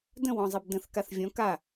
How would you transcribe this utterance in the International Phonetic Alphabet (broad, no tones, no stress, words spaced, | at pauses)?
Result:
də̃wɔ̃zˤib də̃θ kaθvʲɔ̃ ka